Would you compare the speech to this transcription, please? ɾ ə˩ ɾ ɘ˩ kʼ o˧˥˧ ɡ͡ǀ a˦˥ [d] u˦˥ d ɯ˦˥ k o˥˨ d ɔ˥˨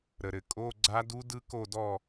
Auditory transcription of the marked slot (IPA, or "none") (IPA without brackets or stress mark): d